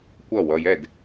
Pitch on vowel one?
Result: falling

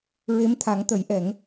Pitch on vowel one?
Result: rising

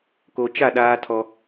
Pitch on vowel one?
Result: low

